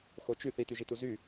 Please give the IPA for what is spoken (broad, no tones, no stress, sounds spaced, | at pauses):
x o t͡ʃ y θ i t y ʒ i t u z y